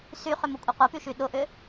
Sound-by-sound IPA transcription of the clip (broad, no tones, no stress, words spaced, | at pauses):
syχʏmʊkʷʼɐ qʷɐpyʃy ɗʊʔʏ